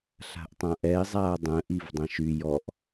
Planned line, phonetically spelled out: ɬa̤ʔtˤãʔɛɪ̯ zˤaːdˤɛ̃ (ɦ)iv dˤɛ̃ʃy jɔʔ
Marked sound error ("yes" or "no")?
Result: yes